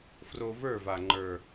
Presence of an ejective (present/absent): absent